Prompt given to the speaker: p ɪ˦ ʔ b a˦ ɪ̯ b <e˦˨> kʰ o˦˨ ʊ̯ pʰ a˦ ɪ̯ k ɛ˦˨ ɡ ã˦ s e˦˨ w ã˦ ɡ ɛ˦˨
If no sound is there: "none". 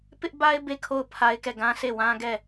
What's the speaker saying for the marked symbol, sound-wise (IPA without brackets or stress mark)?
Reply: e˦˨